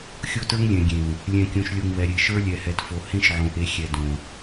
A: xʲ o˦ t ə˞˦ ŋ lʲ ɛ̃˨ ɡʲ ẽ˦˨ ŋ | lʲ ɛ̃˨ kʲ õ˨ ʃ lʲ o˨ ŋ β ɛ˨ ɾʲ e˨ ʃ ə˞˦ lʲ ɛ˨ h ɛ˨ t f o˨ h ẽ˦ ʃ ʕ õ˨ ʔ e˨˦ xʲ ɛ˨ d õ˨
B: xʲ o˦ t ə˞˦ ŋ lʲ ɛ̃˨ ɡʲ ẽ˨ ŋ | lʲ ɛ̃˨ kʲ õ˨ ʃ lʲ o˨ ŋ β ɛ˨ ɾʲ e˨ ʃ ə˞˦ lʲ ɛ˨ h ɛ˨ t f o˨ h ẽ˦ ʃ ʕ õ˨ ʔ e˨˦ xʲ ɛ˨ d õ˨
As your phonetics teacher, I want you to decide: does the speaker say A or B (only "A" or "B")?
B